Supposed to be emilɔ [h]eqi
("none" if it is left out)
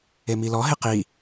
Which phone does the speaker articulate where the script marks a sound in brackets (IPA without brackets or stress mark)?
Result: ɦ